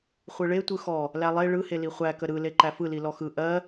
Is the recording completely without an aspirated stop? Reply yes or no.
yes